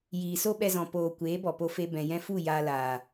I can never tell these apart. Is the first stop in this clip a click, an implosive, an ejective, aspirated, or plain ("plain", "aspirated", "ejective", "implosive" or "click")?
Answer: implosive